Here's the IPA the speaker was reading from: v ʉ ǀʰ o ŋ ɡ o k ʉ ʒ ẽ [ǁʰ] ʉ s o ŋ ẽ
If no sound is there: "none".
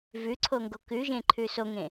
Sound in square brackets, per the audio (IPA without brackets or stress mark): ǃʰ